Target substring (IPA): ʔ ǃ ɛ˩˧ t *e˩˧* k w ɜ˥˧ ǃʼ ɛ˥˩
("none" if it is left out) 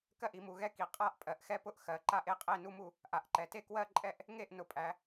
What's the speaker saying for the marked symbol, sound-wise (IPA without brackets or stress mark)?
e˥˩